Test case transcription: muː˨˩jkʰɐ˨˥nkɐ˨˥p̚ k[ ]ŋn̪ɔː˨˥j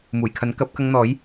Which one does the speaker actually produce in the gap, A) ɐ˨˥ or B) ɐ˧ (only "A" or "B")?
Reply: B